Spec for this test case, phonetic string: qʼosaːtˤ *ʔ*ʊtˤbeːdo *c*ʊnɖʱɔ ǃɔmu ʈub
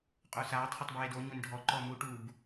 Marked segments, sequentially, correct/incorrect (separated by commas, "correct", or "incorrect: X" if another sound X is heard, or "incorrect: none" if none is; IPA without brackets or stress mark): incorrect: χ, incorrect: ɲ